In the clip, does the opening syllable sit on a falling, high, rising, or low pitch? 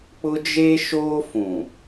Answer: high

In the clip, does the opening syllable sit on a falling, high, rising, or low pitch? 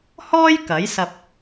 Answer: high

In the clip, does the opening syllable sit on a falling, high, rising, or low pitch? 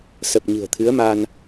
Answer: low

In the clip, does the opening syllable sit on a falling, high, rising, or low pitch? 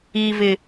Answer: low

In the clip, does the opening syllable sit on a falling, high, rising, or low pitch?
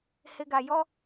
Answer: low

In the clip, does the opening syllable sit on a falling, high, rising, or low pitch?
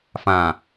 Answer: low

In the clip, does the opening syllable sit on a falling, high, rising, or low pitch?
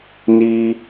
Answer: high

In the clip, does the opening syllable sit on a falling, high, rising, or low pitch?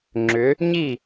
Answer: rising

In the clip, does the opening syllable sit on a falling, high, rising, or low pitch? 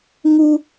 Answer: high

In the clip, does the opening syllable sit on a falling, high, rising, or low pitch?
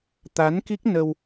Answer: rising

